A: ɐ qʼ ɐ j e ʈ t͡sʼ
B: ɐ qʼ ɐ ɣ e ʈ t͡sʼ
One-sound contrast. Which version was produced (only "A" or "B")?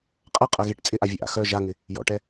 B